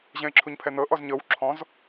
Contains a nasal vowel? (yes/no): yes